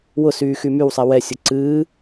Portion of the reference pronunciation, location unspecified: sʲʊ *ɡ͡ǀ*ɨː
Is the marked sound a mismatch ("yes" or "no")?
yes